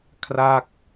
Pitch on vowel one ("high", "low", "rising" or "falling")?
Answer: falling